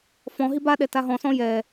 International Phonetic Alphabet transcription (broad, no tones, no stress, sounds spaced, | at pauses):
f ɔ̃ ɦ i b a ɗ ɛ t a ɦ ɔ̃ s ɔ̃ j ɛ